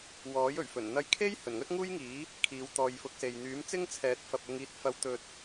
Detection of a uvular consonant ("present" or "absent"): absent